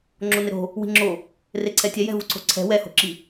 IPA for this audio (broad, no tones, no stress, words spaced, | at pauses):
ŋ͡ǁonɪɾo̤ | wi̤ŋ͡ǁo | reǀʰɛtʲɛ jɛ̤vuǀʰo̤ǀʰɛ̤ wɛho̤ǁi